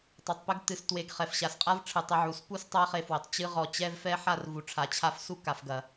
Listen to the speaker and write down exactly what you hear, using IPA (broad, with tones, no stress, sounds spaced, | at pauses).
tˤ ɐ˨ tˤ p ɘ˧ ɡ t ɨ˨ s t w e˨ ɡ χ ɛ˨ f ɕ a˨ s qʼ a˦ v ʈ͡ʂʰ ɨ˨ tˤ ɐ˧ ʕ u˨ s p u˦ s tˤ a˦ χ e˧ f w ɘ˨ tˤ t͡ɕ ɨ˧ ʁ ɔ˨ t͡ɕ ɛ˧ v f ɛ˦ ħ a˦˨ r v u˨ ʈ͡ʂʰ a˨ t͡ɕʰ a˧ f s u˦ k a˨ f ɡ ɐ˨